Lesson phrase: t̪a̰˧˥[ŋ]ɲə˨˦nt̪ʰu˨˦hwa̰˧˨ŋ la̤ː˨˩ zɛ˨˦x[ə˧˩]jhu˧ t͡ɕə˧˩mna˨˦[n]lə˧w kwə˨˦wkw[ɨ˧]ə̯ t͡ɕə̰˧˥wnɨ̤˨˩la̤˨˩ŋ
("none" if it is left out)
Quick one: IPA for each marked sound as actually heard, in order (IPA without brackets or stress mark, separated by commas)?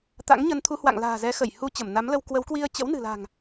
ŋ, ə˧˩, m, i˧